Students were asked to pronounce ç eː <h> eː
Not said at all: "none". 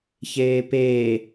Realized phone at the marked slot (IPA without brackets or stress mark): p